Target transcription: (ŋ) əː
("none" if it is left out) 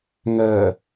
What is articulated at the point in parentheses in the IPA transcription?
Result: ŋ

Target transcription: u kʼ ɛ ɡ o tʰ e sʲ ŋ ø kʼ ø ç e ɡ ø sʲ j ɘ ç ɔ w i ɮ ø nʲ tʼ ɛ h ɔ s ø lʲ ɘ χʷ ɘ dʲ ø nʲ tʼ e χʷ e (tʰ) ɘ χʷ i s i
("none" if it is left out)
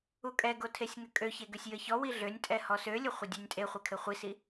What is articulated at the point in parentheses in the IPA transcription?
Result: kʰ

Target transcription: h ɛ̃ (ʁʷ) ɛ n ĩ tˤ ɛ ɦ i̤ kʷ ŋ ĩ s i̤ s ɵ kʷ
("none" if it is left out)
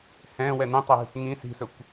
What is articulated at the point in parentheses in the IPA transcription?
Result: w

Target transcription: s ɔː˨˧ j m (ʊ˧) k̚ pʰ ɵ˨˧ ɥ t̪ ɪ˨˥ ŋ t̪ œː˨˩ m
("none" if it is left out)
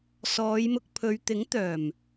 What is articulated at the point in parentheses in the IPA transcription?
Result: ʊ˧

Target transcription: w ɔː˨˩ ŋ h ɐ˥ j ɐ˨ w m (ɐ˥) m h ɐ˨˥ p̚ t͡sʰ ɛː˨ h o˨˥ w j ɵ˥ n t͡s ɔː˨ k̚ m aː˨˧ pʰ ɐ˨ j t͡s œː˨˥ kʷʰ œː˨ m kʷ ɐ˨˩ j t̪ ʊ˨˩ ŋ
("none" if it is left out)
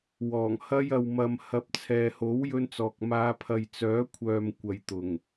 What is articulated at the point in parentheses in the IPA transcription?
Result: ɐ˨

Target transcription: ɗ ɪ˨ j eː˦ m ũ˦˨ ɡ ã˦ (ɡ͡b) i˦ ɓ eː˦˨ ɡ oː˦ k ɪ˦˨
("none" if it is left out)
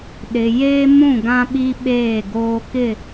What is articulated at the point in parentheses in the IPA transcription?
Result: ɓ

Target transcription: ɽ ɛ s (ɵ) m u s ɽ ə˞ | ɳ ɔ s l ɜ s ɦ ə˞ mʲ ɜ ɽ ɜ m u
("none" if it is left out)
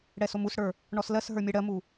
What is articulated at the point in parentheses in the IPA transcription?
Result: o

